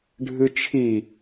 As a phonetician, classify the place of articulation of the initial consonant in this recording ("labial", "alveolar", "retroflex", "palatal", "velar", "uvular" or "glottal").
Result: retroflex